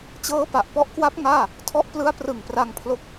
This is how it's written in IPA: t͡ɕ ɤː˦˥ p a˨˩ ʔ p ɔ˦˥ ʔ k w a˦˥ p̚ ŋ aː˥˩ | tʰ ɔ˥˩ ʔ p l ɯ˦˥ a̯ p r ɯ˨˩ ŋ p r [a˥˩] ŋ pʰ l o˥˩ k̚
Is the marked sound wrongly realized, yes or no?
yes